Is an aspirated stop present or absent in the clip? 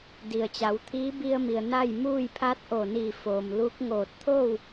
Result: present